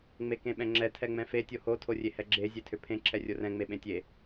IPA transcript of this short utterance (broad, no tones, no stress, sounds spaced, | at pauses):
ŋ͡m e k ẽ ɓ ɛ̃ ŋ͡ǁ ɛ tʰ ɛ ŋ͡m ɛ̃ f e tʲ o h o tʰ o rʲ e h ɛ ɡ͡ǁ e zʲ e tʰ ʏ pʰ ẽ ǁʰ ɛ rʲ o r ɛ̃ ŋ͡m e ɓ ẽ tʲ e